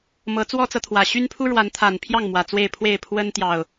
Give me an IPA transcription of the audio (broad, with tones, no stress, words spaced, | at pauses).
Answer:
mɤ˨˦t͡swɔ˦t͡sɤ˨ t̪ʰwä˨˩ɕy˦npʰu˦ ɻwa˨˦nt̪ʰa˨˩npʰjɑ˥˨ŋ mwä˨˩t͡swe˥˨ɪ̯pʰwe˥˨ɪ̯ pʰwə˦n t̪jɑ˨˩ʊ̯